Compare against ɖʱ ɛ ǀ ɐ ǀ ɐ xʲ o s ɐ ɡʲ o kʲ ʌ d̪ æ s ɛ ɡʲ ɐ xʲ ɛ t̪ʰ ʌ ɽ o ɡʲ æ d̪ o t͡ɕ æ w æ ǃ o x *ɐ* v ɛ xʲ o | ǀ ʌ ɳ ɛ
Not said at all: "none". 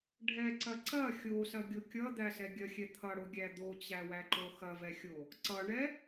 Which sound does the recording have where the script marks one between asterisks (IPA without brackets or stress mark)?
ɐ